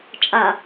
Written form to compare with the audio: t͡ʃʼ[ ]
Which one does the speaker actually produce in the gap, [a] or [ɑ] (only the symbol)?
a